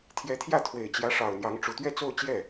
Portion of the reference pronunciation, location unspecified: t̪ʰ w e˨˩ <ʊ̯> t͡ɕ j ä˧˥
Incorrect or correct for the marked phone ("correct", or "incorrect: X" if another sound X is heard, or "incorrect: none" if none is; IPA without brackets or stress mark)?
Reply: incorrect: ɪ̯